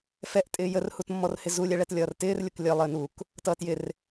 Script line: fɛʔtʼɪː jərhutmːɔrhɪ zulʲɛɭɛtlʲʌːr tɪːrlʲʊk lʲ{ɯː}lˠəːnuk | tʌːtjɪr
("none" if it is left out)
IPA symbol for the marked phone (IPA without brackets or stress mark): əː